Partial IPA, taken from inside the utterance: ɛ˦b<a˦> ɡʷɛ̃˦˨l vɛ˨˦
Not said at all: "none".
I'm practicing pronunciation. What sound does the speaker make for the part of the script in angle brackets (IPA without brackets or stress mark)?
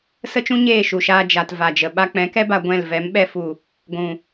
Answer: a˧